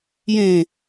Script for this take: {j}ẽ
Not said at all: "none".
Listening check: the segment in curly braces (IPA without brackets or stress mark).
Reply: j